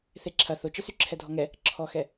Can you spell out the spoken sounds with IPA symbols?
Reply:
θeǁʰɐ θʊt͡ʃə syǁʰɛdʱɔŋɛ | ǁʰɔxɛ

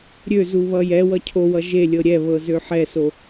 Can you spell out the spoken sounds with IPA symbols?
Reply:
ɾʲøzu βʌjɛwʌ cʰowʌ ʒelʲɤ ɾʲɛβɤ zøħɛso

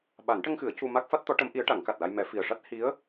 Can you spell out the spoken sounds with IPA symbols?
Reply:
ɓa˨˩˦nʈə˧ŋxɨ˨˩˦ə̯ cu˧ ma˦˥k̚fa˦˥t̚t̪ɔ˧˥ʈə˧˥m ʔi˧˥ə̯ʈa˨˩˦ŋka˨˩t̚la˧j mɛ˨˩˦fi˨˩ə̯ ʂa˦˥t̚ hi˧˥ə̯

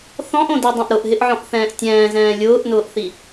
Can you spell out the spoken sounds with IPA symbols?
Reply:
θɔ̃ʔõdidˤũʔ ɾʊʔɦɪʔʕɔ̃ʔθɛ̃ːʔ tʲɛ̃ːzɛ̃ː lʲʊːʔnʊːʔθi

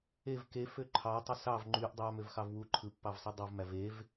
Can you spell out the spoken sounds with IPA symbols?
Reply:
ev kefø ǃʰɑtˤɯ sɑv ŋ͡ǃyʔ dˤɑmøvxɑv wu ǃʰɯpːɑvsˤi dˤuvmæv ev

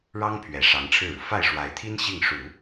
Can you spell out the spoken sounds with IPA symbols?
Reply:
ɻɑ˥ŋpʰɥɛ˨˩ ʂɑ˧˥ŋʈ͡ʂʰɻ̩˥˩ɻu˩ fa˥˩ɪ̯ʂwa˧˥ɪ̯t̪ʰi˥n ɕi˥˩ŋʂu˨˩˦

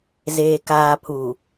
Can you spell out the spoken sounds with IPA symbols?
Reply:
zeː˨kaː˨pʰuː˨

